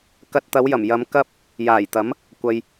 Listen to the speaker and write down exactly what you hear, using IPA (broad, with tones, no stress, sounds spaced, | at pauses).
k ɐ˧ t̚ t̪ ɐ˨˧ w j ɐ˨˩ m j ɐ˨˧ m k ɐ˥ p̚ | j aː˨˩ j t̪ ɐ˨˥ m | kʷ ɐ˨ j